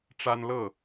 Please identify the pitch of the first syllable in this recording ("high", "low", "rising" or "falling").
high